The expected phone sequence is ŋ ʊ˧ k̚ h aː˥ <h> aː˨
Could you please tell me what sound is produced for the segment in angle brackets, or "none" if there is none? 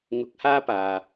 p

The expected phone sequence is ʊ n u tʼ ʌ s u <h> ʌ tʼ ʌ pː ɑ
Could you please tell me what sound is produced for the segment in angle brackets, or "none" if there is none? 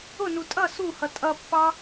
h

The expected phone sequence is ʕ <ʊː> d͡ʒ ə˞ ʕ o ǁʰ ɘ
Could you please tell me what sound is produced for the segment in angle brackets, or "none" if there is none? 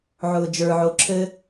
ʊː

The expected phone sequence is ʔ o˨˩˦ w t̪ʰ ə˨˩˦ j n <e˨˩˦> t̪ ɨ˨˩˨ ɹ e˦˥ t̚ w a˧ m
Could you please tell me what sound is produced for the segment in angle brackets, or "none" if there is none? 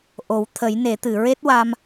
e˨˩˦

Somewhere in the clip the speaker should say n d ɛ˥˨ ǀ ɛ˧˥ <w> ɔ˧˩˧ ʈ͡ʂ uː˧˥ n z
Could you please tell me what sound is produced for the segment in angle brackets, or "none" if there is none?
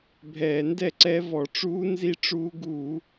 v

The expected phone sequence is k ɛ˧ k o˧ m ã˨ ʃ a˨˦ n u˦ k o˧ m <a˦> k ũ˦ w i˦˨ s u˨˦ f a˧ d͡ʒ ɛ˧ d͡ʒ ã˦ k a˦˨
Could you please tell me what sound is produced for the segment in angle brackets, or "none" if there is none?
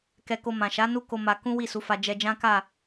a˧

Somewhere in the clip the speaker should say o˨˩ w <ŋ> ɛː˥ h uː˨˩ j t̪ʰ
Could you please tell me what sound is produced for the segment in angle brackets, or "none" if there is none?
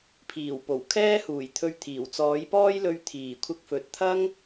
kʰ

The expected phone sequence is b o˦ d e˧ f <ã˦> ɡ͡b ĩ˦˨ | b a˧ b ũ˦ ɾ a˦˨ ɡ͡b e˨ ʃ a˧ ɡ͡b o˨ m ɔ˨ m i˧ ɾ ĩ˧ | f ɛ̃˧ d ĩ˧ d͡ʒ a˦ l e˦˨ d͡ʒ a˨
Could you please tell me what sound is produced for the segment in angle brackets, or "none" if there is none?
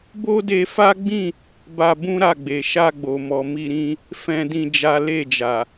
a˦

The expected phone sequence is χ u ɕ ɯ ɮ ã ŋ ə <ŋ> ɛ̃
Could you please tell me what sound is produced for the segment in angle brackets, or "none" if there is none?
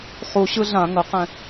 q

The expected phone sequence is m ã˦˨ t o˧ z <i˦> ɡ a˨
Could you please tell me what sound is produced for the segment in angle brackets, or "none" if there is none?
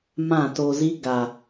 i˦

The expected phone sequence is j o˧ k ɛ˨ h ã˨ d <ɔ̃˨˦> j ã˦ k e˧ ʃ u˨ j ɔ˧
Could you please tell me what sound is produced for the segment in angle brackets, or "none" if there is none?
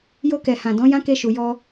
ɔ̃˨˦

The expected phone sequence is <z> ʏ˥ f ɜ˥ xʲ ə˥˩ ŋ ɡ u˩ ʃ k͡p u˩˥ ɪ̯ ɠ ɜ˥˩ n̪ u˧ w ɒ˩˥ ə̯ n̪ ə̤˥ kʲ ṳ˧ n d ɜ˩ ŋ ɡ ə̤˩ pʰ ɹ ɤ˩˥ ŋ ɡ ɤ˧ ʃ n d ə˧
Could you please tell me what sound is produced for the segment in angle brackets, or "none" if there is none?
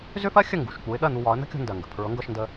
z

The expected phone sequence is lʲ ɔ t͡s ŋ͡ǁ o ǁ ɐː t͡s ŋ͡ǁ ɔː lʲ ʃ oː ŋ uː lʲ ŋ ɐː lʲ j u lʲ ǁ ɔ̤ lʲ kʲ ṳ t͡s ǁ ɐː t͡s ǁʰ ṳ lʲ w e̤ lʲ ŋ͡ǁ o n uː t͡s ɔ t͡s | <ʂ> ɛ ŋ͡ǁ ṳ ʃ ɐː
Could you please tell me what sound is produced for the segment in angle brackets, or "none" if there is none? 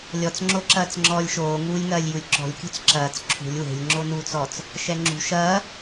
ʃ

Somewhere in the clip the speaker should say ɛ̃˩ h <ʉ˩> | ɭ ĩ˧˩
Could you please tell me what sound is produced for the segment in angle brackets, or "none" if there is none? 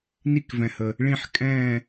ə˩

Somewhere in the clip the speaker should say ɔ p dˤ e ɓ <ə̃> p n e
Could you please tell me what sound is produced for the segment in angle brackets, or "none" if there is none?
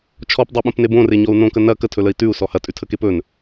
ə̃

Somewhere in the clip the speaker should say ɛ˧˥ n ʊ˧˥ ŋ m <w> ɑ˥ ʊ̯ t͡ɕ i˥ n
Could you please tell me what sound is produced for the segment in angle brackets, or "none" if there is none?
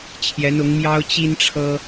j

